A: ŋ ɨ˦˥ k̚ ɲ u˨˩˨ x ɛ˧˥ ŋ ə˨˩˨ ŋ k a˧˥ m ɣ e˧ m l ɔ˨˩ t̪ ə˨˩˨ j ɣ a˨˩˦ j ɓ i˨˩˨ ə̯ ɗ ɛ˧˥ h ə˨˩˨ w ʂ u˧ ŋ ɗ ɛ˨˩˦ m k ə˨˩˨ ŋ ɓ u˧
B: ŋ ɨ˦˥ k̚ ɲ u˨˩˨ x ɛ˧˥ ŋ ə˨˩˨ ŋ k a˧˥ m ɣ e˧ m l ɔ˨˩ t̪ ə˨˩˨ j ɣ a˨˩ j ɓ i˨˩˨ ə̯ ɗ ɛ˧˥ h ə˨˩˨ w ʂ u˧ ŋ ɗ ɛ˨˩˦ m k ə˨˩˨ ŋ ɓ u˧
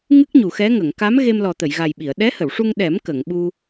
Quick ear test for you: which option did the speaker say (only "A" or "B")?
B